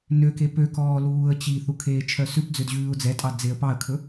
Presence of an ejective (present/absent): present